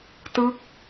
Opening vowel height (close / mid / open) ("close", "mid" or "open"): close